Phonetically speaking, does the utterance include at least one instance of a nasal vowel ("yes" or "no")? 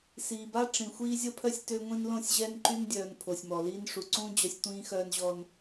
yes